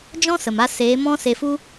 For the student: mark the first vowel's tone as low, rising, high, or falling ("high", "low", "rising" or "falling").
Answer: high